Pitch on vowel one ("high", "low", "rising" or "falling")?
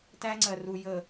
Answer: high